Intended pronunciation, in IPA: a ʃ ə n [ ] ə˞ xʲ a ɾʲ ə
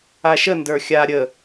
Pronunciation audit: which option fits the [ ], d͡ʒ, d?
d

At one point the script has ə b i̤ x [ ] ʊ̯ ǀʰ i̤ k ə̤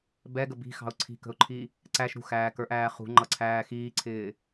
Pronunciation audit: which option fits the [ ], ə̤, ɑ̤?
ɑ̤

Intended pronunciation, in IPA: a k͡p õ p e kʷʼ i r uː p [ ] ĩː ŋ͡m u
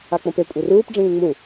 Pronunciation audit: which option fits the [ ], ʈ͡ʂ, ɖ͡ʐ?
ɖ͡ʐ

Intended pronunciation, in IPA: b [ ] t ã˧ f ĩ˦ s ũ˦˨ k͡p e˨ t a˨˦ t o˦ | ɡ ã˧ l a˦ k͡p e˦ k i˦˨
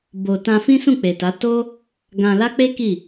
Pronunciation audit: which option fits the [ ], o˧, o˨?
o˧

